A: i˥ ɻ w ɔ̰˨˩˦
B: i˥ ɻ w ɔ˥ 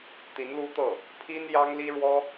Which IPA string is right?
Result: B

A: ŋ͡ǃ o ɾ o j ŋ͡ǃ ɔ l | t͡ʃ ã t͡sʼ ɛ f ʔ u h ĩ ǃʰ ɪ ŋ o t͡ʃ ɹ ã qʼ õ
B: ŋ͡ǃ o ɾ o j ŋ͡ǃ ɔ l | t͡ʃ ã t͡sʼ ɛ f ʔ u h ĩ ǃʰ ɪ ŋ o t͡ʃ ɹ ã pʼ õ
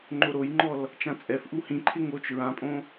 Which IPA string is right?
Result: B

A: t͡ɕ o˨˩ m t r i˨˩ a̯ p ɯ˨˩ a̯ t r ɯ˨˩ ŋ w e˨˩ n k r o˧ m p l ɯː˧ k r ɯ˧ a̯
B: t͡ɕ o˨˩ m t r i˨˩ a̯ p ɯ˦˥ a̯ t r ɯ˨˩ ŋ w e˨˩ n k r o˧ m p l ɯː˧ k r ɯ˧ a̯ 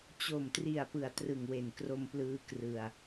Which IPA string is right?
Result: A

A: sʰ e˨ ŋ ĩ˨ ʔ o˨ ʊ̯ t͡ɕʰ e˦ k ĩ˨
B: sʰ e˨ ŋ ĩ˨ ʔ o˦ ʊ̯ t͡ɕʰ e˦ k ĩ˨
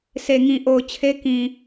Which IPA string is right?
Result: A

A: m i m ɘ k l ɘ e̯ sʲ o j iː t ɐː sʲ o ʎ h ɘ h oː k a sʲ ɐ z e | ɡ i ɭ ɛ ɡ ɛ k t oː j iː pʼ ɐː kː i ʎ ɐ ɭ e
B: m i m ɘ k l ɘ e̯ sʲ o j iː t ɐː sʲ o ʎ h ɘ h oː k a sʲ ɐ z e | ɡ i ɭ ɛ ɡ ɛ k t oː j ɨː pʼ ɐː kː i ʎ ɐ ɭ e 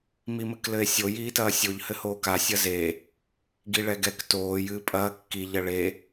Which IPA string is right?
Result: B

